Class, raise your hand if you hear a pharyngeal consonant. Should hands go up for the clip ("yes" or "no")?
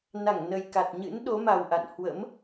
no